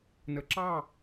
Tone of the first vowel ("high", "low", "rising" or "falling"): low